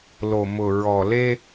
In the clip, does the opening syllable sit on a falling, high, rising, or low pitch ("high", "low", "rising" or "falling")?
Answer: low